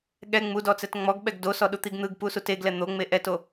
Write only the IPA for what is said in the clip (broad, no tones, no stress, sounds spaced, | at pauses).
ɠ ɛ ŋ͡m u d ɔ t͡s ɛ t ŋ͡m ɔ ɡ ɓ ɛ ɡ d o s ɔ ɗ u t̪ i ɡ n̪ ɯ ɡ p u s u t e ɡ l ɛ n̪ o ŋ͡m e ʔ ɛ t o